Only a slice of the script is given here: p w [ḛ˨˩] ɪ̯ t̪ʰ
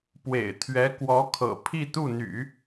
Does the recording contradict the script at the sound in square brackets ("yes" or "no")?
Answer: no